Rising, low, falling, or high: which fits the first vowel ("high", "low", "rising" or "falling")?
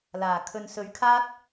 low